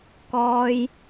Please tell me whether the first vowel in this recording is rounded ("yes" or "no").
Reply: yes